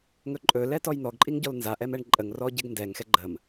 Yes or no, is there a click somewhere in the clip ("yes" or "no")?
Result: yes